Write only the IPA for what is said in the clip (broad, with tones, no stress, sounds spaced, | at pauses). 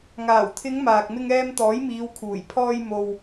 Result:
ŋ aː˨˩ w t̪ʰ ɪ˨˧ ŋ m aː˨ k̚ m ɪ˧ ŋ ɛː˧ m t̪ ɔː˨˥ j m iː˨˧ w kʰ uː˨˩ j pʰ ɔː˧ j m o˨ w